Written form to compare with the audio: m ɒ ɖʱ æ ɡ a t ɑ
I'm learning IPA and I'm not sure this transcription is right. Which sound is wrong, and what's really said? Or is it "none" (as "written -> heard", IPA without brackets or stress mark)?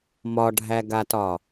ɑ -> ɒ